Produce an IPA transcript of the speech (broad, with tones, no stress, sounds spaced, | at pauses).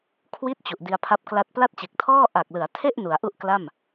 kʰ w i˥˩ t̚ t͡ɕ u˨˩ ʔ d i˧ a̯ pʰ a˦˥ p̚ k l a˥˩ t̚ p l a˥˩ t̚ t͡ɕ e˨˩ k̚ tʰ ɔː˥˩ ʔ a˨˩ k̚ l ɯ˩˦ a̯ tʰ e˥˩ ʔ n u˩˦ a̯ ʔ u˥˩ ʔ k l a˥˩ m